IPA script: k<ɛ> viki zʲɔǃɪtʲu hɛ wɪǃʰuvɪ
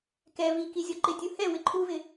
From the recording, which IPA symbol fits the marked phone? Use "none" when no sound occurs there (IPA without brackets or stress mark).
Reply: ɛ